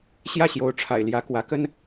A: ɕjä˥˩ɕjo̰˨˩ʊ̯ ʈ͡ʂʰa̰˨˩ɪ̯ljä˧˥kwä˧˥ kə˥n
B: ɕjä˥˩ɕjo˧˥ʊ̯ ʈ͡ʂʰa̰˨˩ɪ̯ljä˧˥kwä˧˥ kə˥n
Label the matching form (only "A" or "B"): B